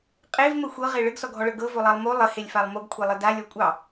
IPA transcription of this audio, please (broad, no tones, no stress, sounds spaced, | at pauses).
qʼ e v m ə xʷ ɤ ʁ e ɭ ɘ ɡ s ɔ ɡʱ ɔ ɭ ɤ ɡ ɤ v o lˠ ɑ lˠ m o lˠ ɘ h e lʲ f a lˠ m o ɡ kʷʰ e lˠ ɘ d a lʲ ɔ kʷʼ ɑ